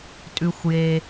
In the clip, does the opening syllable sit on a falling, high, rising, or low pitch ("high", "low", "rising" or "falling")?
low